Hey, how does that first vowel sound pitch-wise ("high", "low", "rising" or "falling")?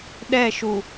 falling